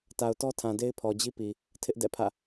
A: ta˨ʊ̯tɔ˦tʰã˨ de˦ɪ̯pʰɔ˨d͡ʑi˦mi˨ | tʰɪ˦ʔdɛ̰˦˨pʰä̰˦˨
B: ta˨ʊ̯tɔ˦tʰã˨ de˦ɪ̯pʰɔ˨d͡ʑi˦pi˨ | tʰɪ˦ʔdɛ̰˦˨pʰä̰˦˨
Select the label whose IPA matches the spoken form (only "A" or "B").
B